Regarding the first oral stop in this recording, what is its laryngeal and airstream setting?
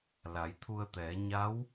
aspirated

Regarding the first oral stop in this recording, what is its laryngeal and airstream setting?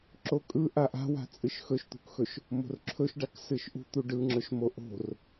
click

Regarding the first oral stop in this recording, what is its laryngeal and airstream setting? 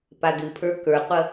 plain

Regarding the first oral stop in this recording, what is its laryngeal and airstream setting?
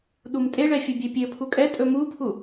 implosive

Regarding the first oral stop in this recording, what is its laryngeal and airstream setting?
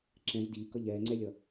click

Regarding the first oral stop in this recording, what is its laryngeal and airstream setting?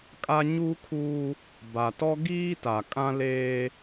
ejective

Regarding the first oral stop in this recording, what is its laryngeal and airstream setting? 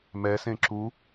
click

